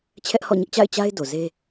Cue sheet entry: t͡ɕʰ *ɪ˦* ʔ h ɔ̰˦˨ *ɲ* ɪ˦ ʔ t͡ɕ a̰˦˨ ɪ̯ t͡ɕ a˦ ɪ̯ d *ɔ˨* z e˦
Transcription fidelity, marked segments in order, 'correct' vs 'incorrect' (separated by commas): incorrect, correct, incorrect